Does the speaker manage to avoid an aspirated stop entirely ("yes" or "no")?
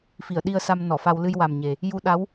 yes